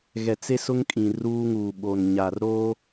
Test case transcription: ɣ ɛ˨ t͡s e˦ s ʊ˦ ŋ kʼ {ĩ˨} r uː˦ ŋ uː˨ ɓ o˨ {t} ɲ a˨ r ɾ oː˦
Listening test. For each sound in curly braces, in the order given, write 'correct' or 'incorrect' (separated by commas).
correct, incorrect